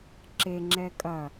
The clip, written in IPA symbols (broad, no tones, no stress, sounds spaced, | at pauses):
ǁ e ŋ͡ǁ ɛ kʼ ɐ